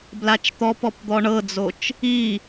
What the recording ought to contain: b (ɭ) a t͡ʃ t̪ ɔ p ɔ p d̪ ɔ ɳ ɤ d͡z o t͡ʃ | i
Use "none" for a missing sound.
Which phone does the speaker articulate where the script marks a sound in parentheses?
l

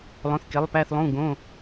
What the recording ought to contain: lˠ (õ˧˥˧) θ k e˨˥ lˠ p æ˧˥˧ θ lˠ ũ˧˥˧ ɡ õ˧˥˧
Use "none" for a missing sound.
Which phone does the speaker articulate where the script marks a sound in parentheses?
õ˨˥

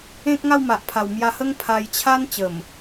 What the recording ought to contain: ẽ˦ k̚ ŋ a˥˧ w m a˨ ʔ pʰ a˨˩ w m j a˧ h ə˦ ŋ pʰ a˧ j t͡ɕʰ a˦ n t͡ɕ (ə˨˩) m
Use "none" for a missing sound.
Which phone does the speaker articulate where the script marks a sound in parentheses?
ə˨˩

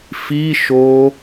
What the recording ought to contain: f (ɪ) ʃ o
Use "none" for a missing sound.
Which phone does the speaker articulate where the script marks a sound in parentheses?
i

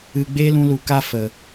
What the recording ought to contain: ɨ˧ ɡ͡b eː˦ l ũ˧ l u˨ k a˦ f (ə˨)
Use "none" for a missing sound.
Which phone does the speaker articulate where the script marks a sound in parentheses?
ə˨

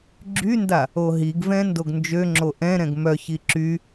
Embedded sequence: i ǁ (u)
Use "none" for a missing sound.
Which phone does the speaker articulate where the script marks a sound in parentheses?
y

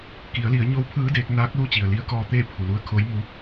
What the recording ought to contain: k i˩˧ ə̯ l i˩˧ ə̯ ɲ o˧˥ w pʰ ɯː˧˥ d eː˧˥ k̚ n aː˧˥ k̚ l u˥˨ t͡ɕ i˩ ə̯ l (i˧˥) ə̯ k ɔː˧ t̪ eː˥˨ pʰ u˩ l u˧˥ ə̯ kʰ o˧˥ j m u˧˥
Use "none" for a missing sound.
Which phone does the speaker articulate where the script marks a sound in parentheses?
i˧˥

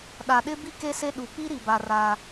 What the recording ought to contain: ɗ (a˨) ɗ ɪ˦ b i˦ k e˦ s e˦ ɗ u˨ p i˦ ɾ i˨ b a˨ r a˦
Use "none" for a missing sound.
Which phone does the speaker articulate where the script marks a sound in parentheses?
a˨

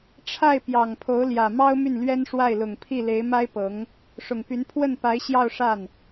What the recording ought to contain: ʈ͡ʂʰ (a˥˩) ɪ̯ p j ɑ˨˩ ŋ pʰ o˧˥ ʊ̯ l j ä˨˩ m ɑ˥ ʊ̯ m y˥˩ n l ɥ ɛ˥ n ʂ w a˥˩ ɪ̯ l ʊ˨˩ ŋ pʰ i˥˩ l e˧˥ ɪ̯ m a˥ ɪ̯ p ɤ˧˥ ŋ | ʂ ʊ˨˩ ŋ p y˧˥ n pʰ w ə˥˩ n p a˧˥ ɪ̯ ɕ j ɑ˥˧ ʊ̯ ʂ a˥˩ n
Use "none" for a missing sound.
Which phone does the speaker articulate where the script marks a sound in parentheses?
a˥˩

